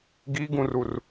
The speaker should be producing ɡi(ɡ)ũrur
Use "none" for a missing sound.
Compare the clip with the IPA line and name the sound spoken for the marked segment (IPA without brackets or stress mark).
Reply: ɡ